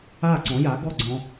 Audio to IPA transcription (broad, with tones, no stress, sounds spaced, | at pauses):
a˥˩ ǀ ɔ̃˩˥ j a˩˥ ɡ ɔ˥˩ ɡ͡ǀ ɔ̃˧